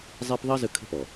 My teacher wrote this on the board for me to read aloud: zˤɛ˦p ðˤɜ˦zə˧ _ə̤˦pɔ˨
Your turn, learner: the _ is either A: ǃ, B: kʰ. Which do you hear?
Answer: B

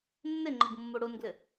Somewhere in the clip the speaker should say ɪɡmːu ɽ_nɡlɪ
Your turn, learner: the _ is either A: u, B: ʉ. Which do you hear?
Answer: A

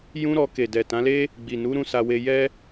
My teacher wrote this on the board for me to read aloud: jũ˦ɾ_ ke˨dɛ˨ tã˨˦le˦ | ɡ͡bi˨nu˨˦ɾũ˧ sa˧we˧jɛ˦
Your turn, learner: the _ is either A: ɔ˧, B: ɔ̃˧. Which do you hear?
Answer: A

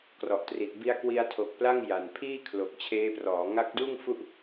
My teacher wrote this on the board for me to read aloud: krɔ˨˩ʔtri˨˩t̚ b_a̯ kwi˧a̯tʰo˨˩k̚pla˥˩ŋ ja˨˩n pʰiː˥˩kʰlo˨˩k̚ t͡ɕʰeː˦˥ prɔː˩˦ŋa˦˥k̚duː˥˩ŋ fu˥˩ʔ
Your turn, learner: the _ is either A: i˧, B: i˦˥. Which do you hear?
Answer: B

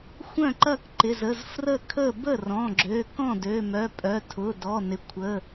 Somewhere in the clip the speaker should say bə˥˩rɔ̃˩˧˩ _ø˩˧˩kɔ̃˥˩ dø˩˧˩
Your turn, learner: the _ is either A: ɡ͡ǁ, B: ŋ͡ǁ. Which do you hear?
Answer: A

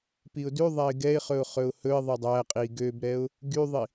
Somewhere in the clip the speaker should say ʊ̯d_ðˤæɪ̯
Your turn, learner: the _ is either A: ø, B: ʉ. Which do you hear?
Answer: B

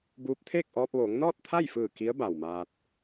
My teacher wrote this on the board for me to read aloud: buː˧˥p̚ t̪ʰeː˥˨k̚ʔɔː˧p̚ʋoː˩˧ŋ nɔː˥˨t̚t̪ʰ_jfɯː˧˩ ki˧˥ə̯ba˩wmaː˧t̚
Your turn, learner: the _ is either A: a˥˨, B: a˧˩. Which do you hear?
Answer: A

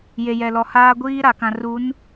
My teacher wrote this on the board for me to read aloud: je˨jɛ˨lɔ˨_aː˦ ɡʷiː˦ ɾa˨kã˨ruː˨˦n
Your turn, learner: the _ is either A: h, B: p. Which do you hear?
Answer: A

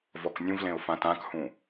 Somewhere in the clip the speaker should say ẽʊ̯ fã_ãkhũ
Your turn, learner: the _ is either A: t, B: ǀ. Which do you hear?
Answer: A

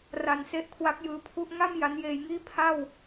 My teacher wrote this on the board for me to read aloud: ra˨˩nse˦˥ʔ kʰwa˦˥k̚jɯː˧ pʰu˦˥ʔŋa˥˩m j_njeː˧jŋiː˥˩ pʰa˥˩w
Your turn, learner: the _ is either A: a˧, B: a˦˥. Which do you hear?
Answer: B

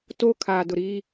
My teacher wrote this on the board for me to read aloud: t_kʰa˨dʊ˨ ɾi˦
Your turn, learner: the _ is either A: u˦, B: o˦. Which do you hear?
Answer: B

